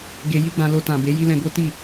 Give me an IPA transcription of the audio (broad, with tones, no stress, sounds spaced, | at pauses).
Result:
ɡ e˧ j i˦ ɡ͡b ã˧ l o˧ t ã˨ b e˨˦ j i˦ l ɛ̃˧ ɡ o˦ t i˦˨